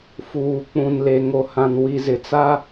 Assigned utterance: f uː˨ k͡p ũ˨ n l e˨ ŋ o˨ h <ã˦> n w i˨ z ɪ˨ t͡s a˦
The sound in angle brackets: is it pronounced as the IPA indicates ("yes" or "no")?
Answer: no